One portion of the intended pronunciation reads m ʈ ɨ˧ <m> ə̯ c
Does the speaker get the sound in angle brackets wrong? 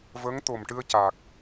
yes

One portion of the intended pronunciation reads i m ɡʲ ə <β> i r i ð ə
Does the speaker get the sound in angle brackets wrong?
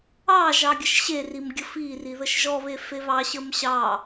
yes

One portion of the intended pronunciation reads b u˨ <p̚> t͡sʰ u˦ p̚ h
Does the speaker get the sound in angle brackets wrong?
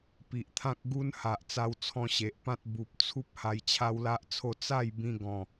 no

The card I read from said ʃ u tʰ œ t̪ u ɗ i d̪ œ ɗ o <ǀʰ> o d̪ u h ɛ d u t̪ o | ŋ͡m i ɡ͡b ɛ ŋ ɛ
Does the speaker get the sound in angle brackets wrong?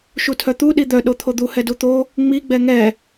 yes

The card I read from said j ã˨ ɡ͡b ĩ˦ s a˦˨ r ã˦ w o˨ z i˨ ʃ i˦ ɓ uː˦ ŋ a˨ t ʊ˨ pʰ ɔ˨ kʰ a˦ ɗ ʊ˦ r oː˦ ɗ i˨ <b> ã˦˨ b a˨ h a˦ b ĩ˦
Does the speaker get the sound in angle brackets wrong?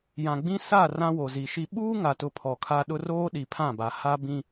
yes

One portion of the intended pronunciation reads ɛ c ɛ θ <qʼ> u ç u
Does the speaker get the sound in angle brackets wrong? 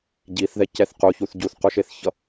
yes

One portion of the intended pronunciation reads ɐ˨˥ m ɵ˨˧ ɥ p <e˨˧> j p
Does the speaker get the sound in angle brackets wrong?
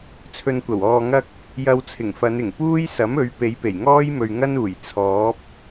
no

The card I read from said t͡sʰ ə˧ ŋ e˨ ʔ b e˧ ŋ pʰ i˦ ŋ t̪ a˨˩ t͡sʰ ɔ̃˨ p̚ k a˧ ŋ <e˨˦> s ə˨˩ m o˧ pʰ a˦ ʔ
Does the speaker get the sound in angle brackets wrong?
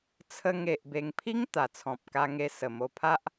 yes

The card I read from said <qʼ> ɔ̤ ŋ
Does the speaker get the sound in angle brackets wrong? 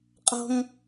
no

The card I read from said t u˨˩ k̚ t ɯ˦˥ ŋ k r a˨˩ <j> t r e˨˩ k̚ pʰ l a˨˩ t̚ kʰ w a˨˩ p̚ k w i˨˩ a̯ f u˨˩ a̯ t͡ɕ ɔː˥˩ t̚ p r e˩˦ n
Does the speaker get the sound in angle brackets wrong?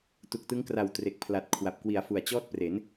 yes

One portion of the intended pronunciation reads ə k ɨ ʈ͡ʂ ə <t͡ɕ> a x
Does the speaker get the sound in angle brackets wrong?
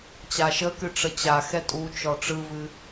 no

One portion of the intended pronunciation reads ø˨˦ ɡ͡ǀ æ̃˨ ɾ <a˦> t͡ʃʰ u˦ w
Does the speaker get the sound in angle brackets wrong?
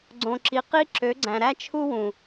yes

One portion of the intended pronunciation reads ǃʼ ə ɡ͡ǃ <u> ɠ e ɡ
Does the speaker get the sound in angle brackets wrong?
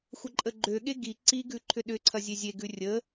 yes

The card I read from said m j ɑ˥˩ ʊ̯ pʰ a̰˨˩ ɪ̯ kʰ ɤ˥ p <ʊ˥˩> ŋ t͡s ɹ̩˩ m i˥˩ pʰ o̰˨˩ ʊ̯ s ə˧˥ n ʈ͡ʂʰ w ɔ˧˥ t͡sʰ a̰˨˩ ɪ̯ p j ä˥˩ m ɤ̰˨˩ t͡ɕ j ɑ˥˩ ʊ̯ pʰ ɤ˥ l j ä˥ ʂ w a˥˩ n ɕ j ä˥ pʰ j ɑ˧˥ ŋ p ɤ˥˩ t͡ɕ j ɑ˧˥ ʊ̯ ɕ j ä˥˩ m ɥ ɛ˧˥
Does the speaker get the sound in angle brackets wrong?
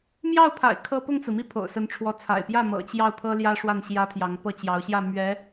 no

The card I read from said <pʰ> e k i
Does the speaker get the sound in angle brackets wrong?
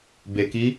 yes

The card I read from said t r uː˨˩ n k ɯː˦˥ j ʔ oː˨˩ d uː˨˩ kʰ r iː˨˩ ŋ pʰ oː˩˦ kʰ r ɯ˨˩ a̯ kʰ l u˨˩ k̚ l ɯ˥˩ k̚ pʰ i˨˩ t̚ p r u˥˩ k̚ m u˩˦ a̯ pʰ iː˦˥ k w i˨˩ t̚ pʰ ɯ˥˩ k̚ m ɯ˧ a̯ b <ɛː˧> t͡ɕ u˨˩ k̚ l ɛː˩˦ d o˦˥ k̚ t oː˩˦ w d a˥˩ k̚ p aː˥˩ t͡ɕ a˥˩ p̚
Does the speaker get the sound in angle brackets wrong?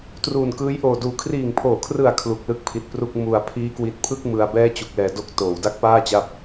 yes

